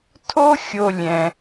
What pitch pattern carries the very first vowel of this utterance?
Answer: high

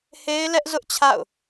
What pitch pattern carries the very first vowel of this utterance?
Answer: high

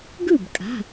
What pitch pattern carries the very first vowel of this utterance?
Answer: falling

